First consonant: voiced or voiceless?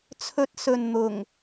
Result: voiceless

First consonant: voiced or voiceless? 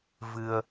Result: voiced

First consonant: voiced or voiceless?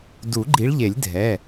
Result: voiced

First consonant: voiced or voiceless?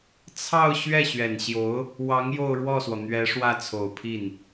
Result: voiceless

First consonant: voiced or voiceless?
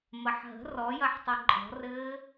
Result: voiced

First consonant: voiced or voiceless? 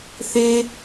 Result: voiceless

